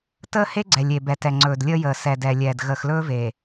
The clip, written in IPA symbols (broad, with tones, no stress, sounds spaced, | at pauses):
t əː˦ h e˦ ɡ͡ǀ ɛ˨ lʲ e˨ b ɛ˨ t ɛ˨ ŋ͡ǀ ɵː˨ d lʲ əː˦ j əː˨ s ɛ˨ d ɛ˨ lʲ ɛː˨ d ɣ əː˨ x l ɵː˦ v e˨